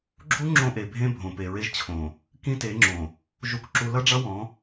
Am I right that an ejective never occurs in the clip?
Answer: yes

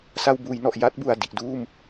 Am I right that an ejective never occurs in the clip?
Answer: yes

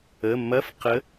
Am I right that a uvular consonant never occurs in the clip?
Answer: no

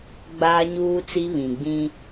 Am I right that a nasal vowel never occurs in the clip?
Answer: no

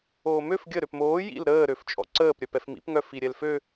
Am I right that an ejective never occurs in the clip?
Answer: no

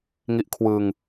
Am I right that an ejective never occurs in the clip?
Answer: yes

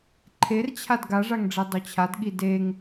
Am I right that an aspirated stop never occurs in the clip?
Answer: no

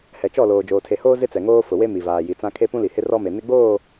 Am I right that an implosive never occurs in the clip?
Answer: yes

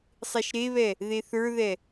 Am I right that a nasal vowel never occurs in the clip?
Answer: yes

